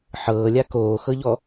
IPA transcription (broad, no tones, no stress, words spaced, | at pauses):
ħɤːlʲa koːxɤʎɔ